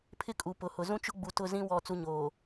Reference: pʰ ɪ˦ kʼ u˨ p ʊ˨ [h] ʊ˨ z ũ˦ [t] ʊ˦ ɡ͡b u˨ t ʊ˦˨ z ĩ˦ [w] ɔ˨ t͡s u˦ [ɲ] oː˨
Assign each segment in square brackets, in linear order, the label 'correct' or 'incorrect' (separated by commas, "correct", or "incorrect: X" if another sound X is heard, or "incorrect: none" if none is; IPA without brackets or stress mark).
correct, incorrect: t͡ʃ, correct, correct